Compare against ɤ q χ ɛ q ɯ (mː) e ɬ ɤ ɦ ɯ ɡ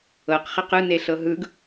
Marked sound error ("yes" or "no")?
yes